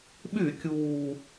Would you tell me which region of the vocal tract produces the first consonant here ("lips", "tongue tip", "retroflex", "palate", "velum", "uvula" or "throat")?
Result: lips